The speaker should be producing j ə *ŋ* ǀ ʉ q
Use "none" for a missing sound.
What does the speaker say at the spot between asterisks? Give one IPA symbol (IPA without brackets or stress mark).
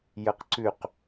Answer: q